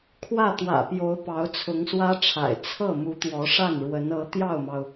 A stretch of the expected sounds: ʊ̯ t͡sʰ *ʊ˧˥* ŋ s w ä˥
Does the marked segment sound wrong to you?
no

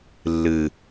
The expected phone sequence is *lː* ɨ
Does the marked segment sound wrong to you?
no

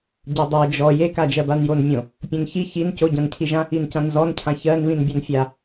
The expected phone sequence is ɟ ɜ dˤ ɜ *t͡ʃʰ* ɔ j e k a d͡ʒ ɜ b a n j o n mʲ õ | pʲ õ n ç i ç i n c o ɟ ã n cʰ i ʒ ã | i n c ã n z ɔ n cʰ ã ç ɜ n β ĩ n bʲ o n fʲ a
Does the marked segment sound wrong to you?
yes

